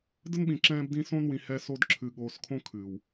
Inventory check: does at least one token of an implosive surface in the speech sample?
yes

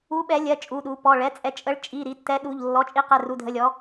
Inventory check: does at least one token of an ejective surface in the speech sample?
yes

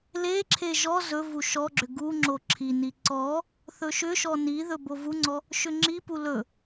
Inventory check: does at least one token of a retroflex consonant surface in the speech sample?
no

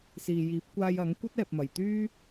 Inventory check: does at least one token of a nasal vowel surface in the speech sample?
no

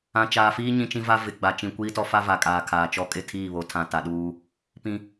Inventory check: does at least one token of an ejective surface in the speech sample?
yes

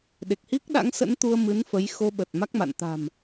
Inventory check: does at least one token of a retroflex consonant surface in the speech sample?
no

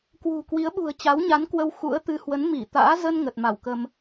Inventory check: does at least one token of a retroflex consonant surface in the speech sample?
no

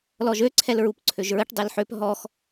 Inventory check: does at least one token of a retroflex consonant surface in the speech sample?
yes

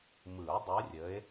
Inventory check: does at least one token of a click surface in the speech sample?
no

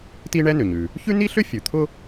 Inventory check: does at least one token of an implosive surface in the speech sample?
no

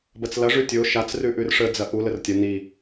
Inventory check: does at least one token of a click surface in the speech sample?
no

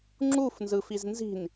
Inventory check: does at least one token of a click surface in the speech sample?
yes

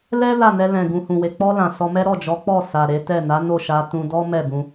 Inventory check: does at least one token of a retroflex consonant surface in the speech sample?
no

